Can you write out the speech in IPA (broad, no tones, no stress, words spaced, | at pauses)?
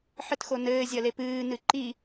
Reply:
ħɘtxonɘː zʲɐlepɨː nɨǃi